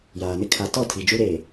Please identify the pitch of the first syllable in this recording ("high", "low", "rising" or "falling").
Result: low